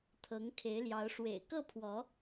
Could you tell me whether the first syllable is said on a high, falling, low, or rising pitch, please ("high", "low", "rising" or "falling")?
rising